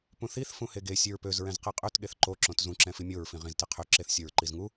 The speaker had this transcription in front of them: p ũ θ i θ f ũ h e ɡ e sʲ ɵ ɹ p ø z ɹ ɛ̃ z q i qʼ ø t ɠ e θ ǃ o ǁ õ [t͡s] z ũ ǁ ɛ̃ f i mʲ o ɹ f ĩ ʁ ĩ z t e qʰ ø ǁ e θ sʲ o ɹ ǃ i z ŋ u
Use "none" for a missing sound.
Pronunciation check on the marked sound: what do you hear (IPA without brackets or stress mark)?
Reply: t